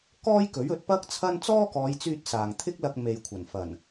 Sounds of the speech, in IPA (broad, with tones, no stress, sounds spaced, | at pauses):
k ɔː˥ j k ɵ˨˥ ɥ ɵ˨˥ t̚ p ɐ˥ k̚ t͡sʰ ɐ˥ n t͡s ɔː˥ k ɔː˨˧ j t͡s yː˧ t̚ s aː˨ ŋ t̪ʰ ɪ˥ k̚ l ɐ˧ k̚ m e˨ j kʷʰ ɐ˨˩ n f ɐ˨˩ n